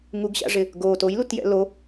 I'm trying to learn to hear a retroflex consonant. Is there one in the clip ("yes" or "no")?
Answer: yes